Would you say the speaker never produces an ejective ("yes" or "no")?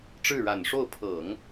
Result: yes